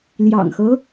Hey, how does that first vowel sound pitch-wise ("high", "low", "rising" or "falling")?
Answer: low